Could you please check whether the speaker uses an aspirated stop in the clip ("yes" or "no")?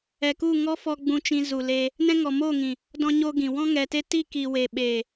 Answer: no